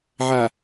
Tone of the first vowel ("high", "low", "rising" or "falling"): low